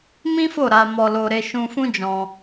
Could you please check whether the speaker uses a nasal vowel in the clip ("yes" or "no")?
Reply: yes